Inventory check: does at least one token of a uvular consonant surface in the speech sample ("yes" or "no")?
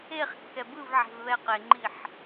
yes